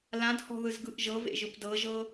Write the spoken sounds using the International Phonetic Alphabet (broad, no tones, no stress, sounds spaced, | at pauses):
l ã d h ɔ̤ ð ɯ z ɡ ɯ ʔ ʒ ɤ v ḛ ʒ ɯ p d ɤ ʒ ɤ